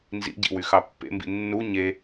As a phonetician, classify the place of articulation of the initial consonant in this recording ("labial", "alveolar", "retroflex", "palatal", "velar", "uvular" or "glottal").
alveolar